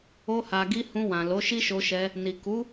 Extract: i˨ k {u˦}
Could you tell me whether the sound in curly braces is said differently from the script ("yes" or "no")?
yes